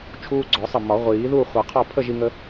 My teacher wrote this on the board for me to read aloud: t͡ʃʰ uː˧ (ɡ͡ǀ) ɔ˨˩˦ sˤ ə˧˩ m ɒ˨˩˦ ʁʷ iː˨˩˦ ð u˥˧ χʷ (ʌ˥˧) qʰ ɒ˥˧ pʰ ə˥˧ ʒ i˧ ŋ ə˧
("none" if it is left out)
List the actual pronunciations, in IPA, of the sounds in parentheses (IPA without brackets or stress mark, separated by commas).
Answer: ɡ͡ǀ, ʌ˨˩˦